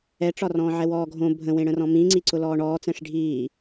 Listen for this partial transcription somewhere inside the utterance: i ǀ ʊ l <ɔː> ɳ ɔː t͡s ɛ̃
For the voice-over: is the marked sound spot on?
yes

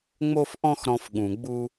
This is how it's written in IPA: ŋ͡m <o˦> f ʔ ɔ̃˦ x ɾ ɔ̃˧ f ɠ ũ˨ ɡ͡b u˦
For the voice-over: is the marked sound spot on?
yes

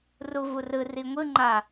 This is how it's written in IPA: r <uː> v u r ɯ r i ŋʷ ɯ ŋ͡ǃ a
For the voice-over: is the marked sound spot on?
no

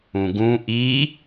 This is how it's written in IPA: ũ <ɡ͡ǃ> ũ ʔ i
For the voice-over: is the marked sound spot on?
no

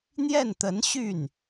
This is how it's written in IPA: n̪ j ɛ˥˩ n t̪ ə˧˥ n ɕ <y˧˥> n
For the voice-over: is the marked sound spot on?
no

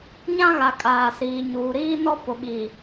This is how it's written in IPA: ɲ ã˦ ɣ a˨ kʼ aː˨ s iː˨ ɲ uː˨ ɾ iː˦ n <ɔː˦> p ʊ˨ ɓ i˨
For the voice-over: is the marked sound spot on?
no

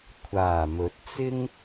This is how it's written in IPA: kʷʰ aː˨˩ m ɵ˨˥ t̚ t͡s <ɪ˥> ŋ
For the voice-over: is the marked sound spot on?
yes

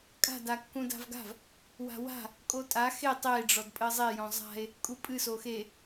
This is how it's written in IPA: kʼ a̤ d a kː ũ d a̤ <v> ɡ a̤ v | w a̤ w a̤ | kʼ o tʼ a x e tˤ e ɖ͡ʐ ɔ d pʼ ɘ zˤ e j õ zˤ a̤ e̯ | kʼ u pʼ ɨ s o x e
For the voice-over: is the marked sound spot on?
yes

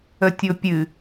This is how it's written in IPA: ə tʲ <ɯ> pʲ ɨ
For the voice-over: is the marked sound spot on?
no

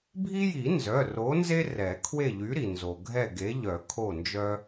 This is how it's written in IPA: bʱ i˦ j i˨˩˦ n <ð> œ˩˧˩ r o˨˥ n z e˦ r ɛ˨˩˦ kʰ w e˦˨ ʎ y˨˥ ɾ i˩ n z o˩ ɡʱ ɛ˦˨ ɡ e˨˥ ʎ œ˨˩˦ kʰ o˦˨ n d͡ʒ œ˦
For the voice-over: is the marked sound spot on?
no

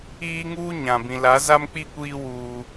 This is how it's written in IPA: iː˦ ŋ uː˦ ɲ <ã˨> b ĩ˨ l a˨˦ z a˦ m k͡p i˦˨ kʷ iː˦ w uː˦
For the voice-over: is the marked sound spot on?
yes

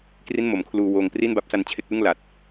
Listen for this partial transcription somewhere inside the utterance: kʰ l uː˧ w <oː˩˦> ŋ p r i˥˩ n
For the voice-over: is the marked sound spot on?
no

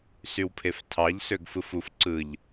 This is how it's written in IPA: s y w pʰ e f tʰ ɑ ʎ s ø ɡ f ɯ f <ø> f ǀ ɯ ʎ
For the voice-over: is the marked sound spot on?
no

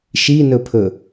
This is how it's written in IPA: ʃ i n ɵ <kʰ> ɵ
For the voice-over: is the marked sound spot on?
no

